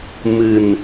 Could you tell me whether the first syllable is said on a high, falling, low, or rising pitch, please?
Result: low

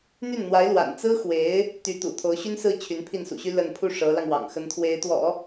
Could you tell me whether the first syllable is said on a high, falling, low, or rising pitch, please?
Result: falling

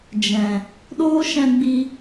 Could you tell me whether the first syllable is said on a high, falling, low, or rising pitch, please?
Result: low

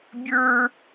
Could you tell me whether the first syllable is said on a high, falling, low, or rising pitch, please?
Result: high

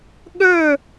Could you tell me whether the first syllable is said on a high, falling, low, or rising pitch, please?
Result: falling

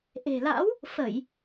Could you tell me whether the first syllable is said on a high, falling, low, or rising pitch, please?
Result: low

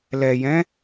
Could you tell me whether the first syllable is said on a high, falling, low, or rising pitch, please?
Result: low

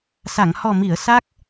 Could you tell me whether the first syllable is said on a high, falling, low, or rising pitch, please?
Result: low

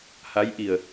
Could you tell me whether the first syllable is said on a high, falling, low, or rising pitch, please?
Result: rising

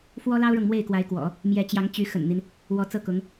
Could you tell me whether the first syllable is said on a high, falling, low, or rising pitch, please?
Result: high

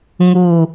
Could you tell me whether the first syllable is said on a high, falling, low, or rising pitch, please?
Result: low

